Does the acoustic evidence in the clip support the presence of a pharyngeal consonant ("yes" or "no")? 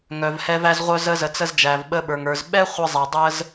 no